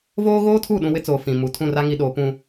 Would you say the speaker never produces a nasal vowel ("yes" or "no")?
no